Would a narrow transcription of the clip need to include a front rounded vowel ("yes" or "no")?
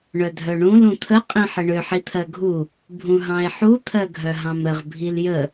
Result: yes